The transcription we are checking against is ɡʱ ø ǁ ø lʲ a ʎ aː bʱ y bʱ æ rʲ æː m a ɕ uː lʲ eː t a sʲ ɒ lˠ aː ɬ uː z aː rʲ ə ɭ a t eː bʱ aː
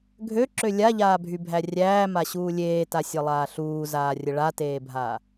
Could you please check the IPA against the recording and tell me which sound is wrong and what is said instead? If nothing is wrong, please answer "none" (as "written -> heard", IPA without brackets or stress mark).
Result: none